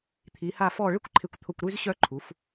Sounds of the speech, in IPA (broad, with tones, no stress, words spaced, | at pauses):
t̪ʰi˩˧ha˧˩fɔ˧˩ ɭɪ˥˧kʷǃʰɪ˧˩kʷt̪ʰʊ˧˩kʷ ɾy˧zɕœ˧ǃʰu˩˧f